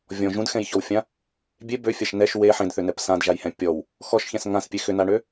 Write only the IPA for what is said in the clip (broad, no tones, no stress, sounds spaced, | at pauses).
vʲ ɔ̃ ʒ ũ d x ɛ̃ j ç ɔ w fʲ ã | bʲ e b ø fʲ a ʃ n ɛ ʃ w e ħ ẽ d θ ʏ n ɛ p s ã d ʒ a j h ɛ̃ pʲ ɔ w | x ɔ ʃ ç ɛ̃ s ŋ ã s pʲ e x ʏ n a ɳ ø